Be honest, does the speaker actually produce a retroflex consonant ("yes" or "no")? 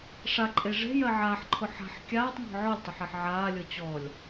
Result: yes